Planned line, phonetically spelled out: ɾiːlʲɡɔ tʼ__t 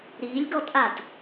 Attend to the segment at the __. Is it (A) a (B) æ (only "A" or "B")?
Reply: A